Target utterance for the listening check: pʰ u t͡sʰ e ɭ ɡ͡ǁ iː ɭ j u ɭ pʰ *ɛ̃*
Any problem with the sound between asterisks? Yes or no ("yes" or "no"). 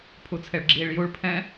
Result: no